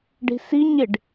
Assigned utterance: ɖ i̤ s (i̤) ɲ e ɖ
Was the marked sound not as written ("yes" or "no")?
yes